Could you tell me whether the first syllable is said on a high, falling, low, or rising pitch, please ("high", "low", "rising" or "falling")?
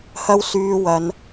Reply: high